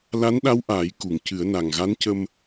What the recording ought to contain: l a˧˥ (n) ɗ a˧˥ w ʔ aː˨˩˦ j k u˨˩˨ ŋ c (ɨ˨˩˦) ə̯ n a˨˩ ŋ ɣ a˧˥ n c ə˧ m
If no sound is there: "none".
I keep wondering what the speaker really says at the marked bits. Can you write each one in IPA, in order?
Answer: n, ɨ˨˩˦

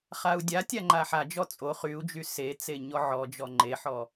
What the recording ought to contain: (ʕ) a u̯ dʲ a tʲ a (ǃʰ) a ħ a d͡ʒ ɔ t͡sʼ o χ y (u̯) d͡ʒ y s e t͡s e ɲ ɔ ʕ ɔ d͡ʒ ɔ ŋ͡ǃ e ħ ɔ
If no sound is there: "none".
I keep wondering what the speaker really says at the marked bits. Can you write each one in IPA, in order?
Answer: χ, ŋ͡ǃ, u̯

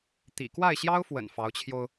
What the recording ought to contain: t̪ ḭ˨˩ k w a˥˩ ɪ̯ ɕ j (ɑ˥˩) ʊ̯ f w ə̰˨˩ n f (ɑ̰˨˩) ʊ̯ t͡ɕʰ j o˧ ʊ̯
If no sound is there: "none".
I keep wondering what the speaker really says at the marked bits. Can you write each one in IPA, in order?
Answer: ɑ˥, ɑ˧˥

